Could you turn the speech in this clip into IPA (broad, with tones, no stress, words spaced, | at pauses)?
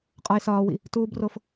qʼɒ˦ɪ̯sɒː˦wḭ˦ | tuː˦bro˦f